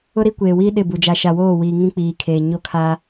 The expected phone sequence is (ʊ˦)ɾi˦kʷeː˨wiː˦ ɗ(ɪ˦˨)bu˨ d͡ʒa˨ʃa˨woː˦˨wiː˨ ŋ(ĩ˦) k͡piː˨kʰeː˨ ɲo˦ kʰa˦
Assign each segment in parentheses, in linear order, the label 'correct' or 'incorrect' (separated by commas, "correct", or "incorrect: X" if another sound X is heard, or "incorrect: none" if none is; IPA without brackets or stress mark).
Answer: correct, correct, correct